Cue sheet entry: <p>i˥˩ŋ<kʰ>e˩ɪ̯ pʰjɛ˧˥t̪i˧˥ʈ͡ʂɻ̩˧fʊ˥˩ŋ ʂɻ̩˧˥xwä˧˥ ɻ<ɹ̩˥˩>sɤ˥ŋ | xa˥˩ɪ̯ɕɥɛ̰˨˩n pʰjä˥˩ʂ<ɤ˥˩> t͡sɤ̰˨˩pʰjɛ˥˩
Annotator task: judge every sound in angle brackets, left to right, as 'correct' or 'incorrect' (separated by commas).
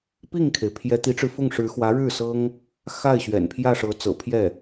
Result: correct, correct, incorrect, incorrect